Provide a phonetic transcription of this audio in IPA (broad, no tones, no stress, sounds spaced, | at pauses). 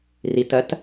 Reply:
r i t ɜ t